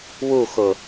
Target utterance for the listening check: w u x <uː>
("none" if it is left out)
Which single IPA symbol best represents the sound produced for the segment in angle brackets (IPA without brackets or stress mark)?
ʊː